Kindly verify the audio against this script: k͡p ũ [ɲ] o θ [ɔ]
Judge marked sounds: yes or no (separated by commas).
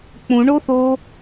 no, no